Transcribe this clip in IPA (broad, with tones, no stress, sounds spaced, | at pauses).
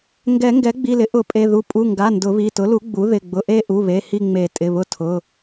ŋ ɡ ɛ˨˩˦ ŋ ɡ ɛ˩˥ ɡ͡b i˩˧˩ l ɪ˩˥ ʔ ʊ˨˩˦ pʼ e˩˧˩ ð u˩˥ pʼ u˩˧˩ ŋ ɡ a˩˧˩ n d ʊ˨˩˦ β i˩˧˩ t ʊ˩˥ l u˩˥ ɡ͡b u˩˥ ð ɪ˩˧˩ ɡ͡b ʊ˩˧˩ ʔ e˦˨ ʔ u˩˧˩ β e˩˧˩ h i˦˨ ŋ͡m e˨˩˦ tʼ ɪ˩˧˩ β ʊ˦˨ tʰ ʊ˩˧˩